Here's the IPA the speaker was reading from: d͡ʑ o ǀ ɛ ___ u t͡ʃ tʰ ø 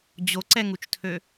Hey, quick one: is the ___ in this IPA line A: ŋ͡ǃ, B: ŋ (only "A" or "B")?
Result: B